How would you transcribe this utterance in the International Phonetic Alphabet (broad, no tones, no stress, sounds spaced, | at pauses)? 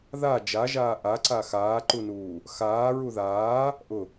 ð a d͡ʒ a ʒ aː ʔ a ǀ a x aː ǃ u n uː | x aː ɹ u ð aː | ʔ ʊ